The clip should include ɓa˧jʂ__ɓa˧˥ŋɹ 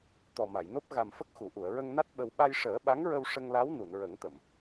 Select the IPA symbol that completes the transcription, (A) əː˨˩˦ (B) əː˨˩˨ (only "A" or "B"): A